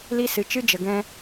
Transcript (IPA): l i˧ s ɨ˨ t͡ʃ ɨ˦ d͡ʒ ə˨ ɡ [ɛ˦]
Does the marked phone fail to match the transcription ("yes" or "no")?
yes